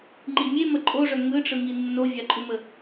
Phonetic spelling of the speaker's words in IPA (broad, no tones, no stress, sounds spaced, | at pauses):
ŋ͡ǃ i mʲ e m ə ǃʼ o ʐ œ ŋ ɯ ʈ͡ʂ ɯ ŋ i nː o vʲ a ǃʼ u m ə